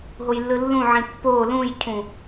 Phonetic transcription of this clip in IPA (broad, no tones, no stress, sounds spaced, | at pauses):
ɦ o j lː ɯ lː ũ ʕ ĩ pː o l ũ j cʰ ũ